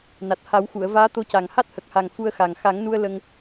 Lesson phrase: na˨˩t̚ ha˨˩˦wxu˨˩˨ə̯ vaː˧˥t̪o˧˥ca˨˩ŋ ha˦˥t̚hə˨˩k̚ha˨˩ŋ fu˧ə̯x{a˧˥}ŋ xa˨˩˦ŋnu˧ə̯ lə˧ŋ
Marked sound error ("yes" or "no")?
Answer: yes